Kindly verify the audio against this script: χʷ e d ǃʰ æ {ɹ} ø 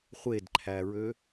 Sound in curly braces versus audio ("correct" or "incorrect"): correct